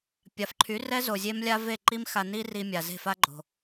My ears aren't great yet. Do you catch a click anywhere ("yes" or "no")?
yes